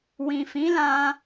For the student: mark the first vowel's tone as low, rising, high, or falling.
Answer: low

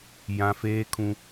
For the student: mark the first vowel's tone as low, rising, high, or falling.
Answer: high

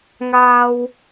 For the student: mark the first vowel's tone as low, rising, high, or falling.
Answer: high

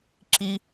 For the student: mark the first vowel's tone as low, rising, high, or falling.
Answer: high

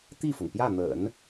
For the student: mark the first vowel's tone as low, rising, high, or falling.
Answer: falling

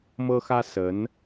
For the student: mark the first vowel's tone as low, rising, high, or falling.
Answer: high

